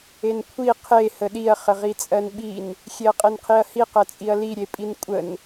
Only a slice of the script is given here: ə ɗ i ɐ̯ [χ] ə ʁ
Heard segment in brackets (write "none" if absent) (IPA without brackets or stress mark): χ